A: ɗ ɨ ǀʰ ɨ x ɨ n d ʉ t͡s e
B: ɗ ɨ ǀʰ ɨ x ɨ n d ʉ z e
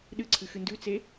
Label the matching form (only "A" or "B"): A